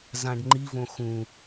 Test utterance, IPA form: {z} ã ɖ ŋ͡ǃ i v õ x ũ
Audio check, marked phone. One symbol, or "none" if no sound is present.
z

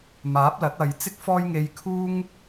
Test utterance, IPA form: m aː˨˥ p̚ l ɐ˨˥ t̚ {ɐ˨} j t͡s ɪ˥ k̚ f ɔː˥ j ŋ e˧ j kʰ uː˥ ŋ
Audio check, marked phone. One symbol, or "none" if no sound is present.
ɐ˨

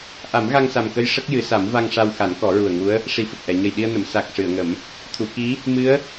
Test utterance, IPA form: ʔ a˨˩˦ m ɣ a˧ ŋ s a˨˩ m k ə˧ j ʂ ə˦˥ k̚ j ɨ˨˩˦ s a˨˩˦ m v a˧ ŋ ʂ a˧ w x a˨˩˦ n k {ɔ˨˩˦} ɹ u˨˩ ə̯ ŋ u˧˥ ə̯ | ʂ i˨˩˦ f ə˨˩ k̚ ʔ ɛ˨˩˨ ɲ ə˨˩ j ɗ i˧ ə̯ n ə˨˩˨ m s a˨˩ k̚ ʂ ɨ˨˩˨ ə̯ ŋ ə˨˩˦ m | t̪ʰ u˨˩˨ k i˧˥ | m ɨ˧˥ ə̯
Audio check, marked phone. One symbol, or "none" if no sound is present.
ɔ˨˩˦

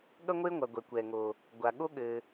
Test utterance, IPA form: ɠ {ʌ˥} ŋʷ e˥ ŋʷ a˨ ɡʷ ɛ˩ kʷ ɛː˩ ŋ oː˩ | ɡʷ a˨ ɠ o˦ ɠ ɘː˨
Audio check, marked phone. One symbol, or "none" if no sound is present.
ʌ˥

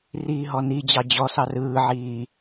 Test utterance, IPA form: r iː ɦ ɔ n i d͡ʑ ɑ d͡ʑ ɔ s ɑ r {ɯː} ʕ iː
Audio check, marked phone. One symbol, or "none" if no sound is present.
ɯː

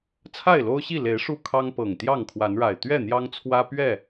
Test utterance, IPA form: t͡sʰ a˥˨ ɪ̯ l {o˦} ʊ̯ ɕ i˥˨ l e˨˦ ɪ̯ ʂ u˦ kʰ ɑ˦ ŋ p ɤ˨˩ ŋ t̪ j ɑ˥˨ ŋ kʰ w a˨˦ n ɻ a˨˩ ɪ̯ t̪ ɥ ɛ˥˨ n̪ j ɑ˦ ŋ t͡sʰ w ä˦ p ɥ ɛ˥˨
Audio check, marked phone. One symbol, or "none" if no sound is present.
o˦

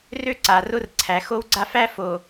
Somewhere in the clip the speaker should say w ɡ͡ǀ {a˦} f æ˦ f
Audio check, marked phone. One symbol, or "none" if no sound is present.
a˦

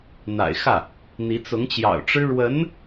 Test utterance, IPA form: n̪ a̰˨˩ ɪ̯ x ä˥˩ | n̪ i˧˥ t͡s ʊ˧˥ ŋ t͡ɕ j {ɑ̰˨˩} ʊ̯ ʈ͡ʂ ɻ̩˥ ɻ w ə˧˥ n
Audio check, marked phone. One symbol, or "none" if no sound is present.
ɑ̰˨˩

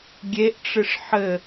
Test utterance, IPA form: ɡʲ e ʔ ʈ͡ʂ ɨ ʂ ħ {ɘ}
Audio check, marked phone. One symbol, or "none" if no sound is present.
ɘ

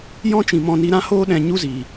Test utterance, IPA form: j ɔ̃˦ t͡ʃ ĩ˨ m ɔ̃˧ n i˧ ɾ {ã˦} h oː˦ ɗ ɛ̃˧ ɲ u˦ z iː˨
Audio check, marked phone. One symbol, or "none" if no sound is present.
ã˦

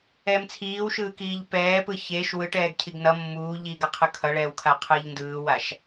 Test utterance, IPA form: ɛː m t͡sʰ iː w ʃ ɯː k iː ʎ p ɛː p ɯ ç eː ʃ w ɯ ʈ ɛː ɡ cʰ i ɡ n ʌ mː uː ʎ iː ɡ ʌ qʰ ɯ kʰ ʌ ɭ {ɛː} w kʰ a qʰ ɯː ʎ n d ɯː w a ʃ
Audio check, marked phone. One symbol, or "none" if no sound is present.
ɛː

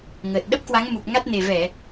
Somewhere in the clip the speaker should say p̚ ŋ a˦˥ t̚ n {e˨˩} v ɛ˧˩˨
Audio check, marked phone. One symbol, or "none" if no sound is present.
e˨˩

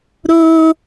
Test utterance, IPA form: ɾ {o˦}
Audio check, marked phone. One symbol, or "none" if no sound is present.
oː˦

